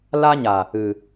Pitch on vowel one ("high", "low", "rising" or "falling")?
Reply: high